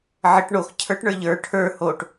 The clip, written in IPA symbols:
ʕ ə ʈ ɳ o x cʰ ə˞ ʈ ɳ ə˞ ʎ ə˞ ʈʰ ə˞ h o ʈ

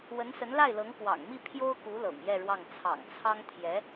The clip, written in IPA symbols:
w ə˧˥ n s ə˧˥ n l a˥˩ ɪ̯ l ɤ˧˥ ŋ k w ɑ̰˨˩ ŋ m i˥˩ pʰ j o˥ ʊ̯ k u˧˥ l ɤ̰˨˩ ŋ j ɛ˥˧ ɻ w ɑ˥˩ ŋ t͡sʰ ɑ̰˨˩ ŋ t͡sʰ ɑ˥ ŋ t̪ʰ j ɛ˧˥

